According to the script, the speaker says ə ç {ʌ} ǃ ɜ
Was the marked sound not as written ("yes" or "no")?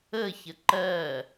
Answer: yes